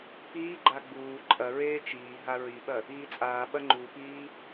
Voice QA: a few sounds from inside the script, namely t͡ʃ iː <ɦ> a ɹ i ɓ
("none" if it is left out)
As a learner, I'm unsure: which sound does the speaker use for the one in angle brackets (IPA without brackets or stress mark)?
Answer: ɦ